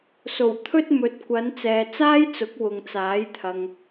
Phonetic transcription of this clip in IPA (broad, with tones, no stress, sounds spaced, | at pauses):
s o˨˩ w t̪ʰ ɵ˥ t̚ m ɵ˨˥ t̚ kʷ ɐ˨˧ n t͡s ɛː˨ t͡s aː˥ j t͡s ʊ˨˥ k̚ w ʊ˨ ŋ t͡s aː˨˥ j t̪ʰ ɐ˨ ŋ